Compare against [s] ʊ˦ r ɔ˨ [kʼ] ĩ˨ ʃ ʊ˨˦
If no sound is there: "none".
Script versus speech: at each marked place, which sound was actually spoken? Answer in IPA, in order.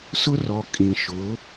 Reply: s, kʼ

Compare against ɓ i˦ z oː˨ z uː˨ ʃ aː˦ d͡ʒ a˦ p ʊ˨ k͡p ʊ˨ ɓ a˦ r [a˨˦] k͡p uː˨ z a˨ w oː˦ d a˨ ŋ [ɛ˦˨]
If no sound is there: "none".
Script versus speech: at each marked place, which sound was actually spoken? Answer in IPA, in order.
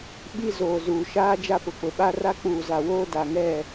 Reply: a˦, ɛ˦˨

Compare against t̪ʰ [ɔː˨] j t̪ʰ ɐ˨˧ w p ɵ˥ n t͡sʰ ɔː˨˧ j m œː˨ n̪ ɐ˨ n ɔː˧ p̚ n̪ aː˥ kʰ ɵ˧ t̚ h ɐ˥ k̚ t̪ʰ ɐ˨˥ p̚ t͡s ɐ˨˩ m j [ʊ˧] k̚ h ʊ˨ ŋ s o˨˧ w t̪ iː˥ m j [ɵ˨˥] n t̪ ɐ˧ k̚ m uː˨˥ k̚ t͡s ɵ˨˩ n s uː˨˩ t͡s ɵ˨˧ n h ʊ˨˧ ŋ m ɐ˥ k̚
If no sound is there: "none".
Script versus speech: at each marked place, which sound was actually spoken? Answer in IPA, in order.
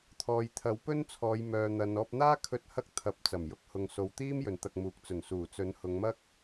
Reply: ɔː˨, ʊ˥, ɵ˨

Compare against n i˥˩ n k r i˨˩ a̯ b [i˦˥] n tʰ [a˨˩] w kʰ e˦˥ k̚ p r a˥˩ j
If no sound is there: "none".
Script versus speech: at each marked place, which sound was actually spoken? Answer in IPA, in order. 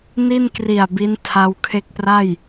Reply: i˦˥, a˧

